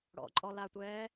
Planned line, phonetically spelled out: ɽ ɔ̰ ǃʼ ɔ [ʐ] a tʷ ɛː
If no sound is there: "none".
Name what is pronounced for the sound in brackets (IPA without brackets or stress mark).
l